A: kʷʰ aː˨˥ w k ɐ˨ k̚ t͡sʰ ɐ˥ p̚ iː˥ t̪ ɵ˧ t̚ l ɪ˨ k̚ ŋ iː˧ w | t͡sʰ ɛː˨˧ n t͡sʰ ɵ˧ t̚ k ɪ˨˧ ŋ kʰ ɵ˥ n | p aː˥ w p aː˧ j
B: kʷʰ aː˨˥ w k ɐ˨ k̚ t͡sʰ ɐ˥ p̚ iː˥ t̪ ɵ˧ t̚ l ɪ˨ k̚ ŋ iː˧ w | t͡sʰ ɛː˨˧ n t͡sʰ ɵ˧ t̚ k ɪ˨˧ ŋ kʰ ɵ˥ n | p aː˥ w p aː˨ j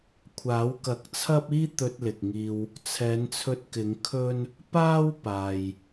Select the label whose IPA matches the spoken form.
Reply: B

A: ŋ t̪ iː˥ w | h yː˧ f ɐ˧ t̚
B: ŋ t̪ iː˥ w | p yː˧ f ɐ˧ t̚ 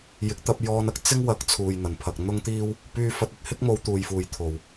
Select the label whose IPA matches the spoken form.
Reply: B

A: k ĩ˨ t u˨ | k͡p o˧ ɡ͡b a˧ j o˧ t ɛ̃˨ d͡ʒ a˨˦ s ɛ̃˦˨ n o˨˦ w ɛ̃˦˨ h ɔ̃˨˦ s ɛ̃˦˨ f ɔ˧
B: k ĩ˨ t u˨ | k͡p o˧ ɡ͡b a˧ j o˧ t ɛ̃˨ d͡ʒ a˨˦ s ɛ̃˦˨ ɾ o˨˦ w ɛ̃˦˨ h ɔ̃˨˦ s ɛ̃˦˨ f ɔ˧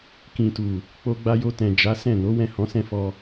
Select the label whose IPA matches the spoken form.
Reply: A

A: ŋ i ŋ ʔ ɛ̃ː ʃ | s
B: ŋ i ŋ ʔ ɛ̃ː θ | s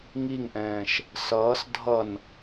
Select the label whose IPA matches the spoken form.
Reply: A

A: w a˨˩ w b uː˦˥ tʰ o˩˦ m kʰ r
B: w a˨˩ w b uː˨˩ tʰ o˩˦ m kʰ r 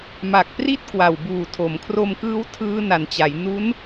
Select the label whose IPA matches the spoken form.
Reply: B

